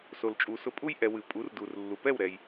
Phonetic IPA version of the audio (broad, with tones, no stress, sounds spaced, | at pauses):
s o˩ l t͡ʃʼ u˩ s ʊ˧ pʼ u˥ j ʔ ɛ˩ w ɨ˩ pʼ u˩˥ r d u˩ r lː u˩ p ɛ˥˩ w ɾ ɛ˩ j